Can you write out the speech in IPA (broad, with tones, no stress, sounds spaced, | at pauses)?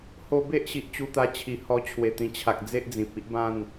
h o˧ b e˦ ʔ ɕ i˨ ʔ t͡ɕ u˧ t̪ a˧ t͡ɕʰ i˨˩ h ɔ˧ t͡ɕʰ w e˨˩ t̪ ĩ˨˩ t͡ɕʰ a˨ k̚ d͡z e˦ ʔ d͡z ĩ˨ p̚ i˦ ʔ b ã˥˧ n